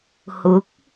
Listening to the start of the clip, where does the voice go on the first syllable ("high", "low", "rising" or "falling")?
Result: rising